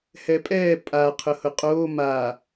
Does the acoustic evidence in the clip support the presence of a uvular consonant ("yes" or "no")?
yes